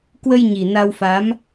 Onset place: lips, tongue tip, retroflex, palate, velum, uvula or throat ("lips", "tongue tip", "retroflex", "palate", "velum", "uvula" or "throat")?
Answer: velum